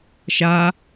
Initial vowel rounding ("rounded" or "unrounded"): unrounded